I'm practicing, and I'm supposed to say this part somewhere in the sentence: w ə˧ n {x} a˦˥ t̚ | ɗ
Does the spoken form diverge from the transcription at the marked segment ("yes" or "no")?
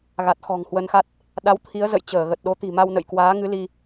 no